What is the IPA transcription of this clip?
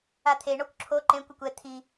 at̪ʰe ɳɔkʷǁʰo ǃẽkʷ ekʷɛ t̪ʰi

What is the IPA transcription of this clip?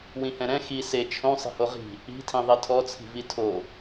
wĩhɛ̃ɾɛ̃ xi se t͡ʃʰõ sˤi̤hoʁi̤ | i̤tʰĩ ðˤitʰɔt͡sʰi̤vi tʰo

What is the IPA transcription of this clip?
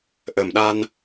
ʔə˨˩mɗa˧n

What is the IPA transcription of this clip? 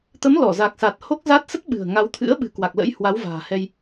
t̪ə˨˦mlɔ˧˩za˨˩k̚sa˨˩t̚ ho˦˥k̚za˦˥t̚ sə˦˥t̚ɓɨ̤˨˩ə̯ŋa˨˦wt̪ʰɨ̰˧˥ə̯ ɓɨ̤˨˩kwa˨˩k̚lə̰˧˥j hwa˨˦wva̤ː˨˩hɛ˧j

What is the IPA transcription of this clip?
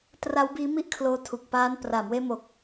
tra˦˥wbiː˦˥ mi˥˩ʔkʰloː˦˥tʰu˨˩k̚ paː˦˥n praː˩˦mweː˧mo˨˩k̚

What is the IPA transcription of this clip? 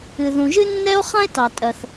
ɨ˩ðũ˩ʒɨ˥ nːɛ˥o̯ χã˥e̯tɑ˩tʼɜ˩θ

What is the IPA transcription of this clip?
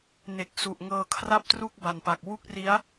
ne˨˩k̚su˨˩ʔŋɤː˧ kʰra˥˩p̚tru˥˩k̚ ba˨˩npa˨˩k̚ wu˥˩k̚ri˦˥a̯

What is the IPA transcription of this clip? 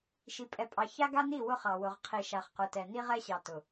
ʃi˨pʼɛ˨pʼɑ˨ ça˦ɡa˦ni˦˨ wʊ˦χɑ˨ wʊ˨ʁqʰi˨ ʃa˨χqʊ˨tɛ˨ ni˦ʁɛ˦ɕɑ˨ tʊ˨

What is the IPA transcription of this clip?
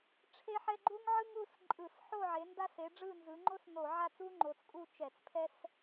ʈ͡ʂʰe˥ħɛ˥ ɡ͡ǃu˥ŋʕɯ˥ŋu˥˧s ǃʼɯ˧˩˧sħo˥˧ʕe˨˦ nda˥s e˨˦ɖ͡ʐɯ˥˧nzɯ˨˦ ŋ͡ǃo˥s no˧˩˧ʕa˥˧t͡su˥ ŋ͡ǃo˨˦t͡skʼu˥˧ t͡ʃɛ˧˩˧t͡spʰɛ˥s

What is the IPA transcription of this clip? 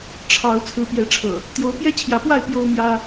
ʈ͡ʂʰɑ˨˦ʊ̯ t͡sʰɹ̩˨˦pjɛ˨˦ʈ͡ʂʰɤ̰˨˩ | t̪jo˨˦ʊ̯pjɛ˦t͡ɕʰjä˨˦pwa˥˨ɪ̯ pjo˦ʊ̯mjä˦

